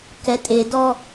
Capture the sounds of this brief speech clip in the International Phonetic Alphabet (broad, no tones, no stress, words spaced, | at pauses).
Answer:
kɛtʼedɔ